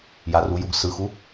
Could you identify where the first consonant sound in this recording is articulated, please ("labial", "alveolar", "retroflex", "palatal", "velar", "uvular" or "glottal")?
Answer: palatal